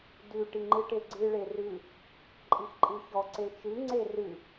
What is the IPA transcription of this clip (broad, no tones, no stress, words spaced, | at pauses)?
dʉ ʈiŋ͡ǃɨʈeɡ͡ǀɨ ɭerʉ | ǃʼixǃʼɨçɔ ǀet͡ʃɨ ŋ͡ǀerɨ